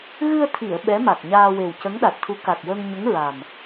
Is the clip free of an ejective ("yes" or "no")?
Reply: yes